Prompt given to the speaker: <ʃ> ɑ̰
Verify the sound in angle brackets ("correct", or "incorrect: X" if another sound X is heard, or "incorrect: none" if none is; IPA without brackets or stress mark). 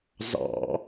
incorrect: z